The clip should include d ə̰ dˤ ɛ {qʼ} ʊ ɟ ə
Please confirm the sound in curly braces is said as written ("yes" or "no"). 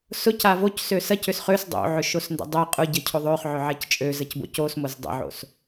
yes